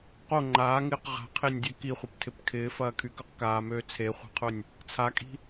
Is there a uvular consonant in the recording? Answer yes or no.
yes